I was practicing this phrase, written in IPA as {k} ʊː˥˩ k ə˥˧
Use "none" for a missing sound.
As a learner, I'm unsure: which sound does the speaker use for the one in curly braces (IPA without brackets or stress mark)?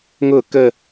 ŋ